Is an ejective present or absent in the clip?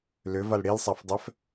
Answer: absent